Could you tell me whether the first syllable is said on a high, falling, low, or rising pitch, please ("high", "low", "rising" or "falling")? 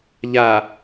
low